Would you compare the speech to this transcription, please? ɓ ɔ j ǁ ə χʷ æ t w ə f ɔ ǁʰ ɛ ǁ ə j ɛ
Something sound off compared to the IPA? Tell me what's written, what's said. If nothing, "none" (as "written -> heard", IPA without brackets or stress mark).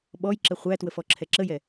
none